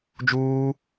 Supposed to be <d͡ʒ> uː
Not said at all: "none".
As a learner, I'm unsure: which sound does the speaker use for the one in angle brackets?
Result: d͡ʒ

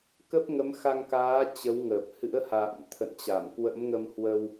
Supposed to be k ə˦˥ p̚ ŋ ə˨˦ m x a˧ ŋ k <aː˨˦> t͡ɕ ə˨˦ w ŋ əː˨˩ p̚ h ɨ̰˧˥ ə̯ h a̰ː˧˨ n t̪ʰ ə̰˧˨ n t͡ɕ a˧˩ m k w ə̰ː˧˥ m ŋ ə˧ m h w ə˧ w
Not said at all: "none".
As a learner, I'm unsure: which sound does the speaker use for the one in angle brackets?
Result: aː˨˦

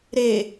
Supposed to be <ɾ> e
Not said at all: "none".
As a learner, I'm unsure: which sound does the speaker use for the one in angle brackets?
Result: ɾ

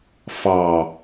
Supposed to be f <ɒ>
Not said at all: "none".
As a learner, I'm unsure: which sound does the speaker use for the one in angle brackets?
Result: ɑ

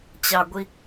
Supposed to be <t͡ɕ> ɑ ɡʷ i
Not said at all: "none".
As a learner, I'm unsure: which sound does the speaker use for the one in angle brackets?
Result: t͡ɕ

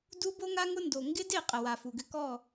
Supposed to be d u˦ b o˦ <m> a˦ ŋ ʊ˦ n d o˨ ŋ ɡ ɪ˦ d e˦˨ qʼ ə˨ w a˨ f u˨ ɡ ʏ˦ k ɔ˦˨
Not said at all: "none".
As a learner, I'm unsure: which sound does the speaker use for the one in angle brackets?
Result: ŋ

